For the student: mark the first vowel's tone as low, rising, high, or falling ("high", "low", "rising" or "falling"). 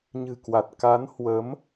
low